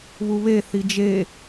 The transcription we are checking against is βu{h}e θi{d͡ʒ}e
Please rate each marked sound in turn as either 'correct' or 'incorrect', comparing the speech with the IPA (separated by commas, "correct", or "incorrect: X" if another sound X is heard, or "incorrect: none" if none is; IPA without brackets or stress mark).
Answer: incorrect: β, correct